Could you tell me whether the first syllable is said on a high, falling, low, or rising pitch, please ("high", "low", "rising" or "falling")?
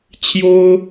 high